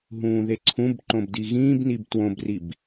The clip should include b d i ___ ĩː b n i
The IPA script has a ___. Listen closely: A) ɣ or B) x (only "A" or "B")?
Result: A